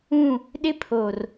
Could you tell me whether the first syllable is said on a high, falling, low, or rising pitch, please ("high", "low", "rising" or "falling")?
falling